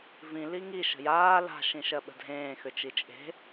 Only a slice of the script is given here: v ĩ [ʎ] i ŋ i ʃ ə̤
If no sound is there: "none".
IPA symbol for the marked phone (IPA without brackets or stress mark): l